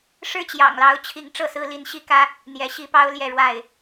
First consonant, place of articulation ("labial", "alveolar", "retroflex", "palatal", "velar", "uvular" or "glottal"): retroflex